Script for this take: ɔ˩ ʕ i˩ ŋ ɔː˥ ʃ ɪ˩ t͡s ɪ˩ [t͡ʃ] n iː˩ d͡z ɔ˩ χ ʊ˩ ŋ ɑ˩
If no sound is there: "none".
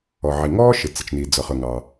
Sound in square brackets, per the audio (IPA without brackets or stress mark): t͡ʃ